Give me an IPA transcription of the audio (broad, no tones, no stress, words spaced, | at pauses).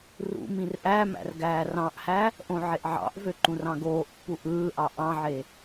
rṵ mĩrʔæmæ̰r ɡæːrɑ̃ʔhæ | ʔõʕeʔʕɑ̰ʔvø ǃũrɑ̃ɡoːʔpːu ʔɯːʔɑ ʔɑ̃ʕe